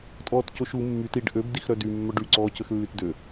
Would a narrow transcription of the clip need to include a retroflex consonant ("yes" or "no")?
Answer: yes